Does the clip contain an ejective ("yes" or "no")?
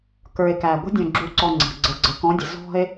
no